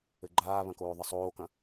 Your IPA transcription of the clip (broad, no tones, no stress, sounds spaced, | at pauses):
ɘ ɡ͡ǃ aː β ɐ̃ k oː ðˤ ɘ sˤ oː k ɐ̃